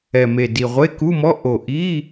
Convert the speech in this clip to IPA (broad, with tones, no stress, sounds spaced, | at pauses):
ɛ˨˩ m e˨˩ d i˨˩ ʁʷ e˧˥˧ k u˧˥˧ m ɔ˧˥˧ ʔ o˨˩ ʔ i˧˥˧